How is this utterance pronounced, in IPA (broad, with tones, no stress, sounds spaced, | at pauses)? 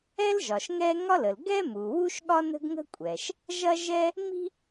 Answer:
ɛ˥ l ʒ ɒ˩ ʃ ŋ ɛ˥ ŋ ɒ˥ l ə˩ l ɡ ɛ˥ m u˩ w u˥ ʃ ɠ ɒ˥ n ə̤˥ ɡ ŋ ə̤˥ kʷʼ ɛ˩ ʃ | ʒ ɐ˥ ʒ ɛ˥ | m i̤˥